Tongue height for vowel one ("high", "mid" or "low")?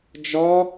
low